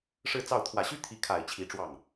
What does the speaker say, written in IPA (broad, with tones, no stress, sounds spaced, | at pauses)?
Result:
ʂ ɻ̩˥˧ t͡s ɑ˥˩ ʊ̯ t̪ʰ w ä˨˩ ɕ y˥ t̪ʰ i˧˥ kʰ a˨˩ ɪ̯ t͡ɕʰ i˧˥ ʈ͡ʂ w ɑ˥˩ ŋ